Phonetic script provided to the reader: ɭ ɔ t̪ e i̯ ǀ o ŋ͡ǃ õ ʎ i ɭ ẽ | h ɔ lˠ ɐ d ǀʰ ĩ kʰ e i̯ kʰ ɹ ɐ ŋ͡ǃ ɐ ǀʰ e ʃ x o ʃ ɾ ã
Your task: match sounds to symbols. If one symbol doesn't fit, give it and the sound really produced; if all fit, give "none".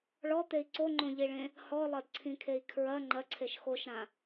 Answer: none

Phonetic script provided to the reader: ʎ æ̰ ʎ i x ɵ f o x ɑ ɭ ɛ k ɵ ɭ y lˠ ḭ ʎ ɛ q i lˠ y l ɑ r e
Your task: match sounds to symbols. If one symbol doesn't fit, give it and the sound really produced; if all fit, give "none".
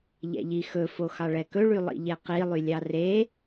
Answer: l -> lʲ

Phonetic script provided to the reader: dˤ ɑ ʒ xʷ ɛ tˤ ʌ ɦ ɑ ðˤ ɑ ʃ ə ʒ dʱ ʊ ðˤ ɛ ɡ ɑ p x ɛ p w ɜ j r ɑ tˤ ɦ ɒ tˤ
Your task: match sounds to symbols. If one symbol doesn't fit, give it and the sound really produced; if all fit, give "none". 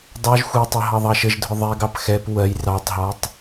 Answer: none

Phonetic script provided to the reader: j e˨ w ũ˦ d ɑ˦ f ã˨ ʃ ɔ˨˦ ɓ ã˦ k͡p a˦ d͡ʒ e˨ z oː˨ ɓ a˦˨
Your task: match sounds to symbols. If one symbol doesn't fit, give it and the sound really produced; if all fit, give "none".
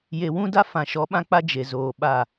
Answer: ɑ˦ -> a˦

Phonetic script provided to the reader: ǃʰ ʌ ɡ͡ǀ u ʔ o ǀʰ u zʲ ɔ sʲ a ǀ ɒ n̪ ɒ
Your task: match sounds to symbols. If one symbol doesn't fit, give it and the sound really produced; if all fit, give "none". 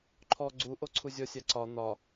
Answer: ʌ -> ɔ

